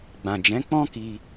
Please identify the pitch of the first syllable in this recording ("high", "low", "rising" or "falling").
low